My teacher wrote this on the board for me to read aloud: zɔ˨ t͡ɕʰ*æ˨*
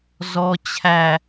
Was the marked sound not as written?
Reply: no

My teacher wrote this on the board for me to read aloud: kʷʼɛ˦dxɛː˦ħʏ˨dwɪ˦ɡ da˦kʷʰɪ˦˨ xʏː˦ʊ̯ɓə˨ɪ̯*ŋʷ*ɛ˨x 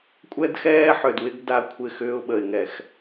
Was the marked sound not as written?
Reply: yes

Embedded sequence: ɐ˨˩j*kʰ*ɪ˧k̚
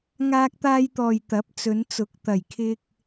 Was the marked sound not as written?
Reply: no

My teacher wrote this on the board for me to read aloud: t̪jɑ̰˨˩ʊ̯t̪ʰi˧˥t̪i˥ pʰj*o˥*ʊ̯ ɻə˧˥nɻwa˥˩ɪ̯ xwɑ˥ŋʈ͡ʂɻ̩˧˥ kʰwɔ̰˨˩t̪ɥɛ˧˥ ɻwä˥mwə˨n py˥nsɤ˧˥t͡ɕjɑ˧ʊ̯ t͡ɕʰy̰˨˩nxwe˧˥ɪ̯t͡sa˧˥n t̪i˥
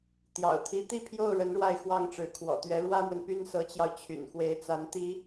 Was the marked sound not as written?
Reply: yes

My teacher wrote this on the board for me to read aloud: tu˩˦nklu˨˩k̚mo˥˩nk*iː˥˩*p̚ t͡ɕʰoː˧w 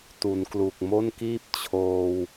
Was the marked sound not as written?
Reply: no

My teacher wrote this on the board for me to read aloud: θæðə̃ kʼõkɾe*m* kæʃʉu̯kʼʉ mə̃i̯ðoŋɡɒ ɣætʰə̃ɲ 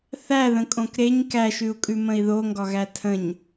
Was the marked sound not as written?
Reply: yes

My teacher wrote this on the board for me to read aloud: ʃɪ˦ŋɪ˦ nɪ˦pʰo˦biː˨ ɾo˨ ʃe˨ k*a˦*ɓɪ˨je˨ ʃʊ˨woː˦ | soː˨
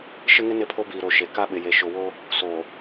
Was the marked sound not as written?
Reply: no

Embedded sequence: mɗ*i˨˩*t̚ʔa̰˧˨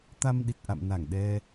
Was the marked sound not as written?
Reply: no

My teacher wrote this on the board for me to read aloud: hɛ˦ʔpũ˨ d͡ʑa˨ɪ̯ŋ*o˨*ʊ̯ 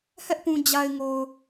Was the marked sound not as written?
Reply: no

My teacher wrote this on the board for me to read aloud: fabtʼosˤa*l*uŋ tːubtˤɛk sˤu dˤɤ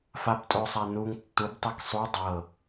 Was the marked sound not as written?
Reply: yes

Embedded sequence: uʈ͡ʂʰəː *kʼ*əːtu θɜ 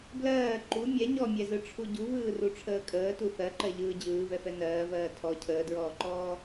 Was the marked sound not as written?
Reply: no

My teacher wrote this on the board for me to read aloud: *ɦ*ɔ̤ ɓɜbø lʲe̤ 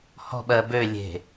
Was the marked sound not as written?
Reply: yes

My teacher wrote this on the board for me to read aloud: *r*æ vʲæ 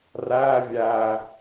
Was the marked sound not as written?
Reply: no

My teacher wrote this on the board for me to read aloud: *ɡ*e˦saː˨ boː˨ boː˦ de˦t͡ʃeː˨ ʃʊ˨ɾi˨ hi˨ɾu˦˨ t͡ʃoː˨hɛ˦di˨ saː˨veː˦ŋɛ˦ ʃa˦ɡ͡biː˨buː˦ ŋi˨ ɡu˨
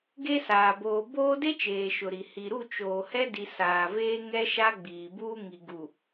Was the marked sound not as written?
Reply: no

